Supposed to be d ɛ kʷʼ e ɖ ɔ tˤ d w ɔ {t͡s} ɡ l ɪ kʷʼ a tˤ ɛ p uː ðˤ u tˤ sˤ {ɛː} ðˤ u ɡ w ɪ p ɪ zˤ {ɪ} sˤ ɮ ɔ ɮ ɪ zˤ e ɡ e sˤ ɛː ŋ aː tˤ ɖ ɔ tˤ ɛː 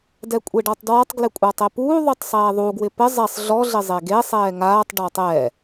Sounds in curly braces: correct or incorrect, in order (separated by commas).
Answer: incorrect, correct, incorrect